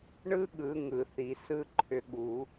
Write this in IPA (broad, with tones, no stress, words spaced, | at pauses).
ɳɯ˦˥ɠɯ˨˩˦ ŋɯ˨˩˦θi˨˩˦sɯ˦˥ ǃʰʏ˨˦ɠu˨˩˦